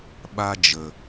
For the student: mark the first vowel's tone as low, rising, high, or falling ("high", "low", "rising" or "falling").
high